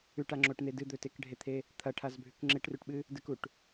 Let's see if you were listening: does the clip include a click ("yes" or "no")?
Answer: yes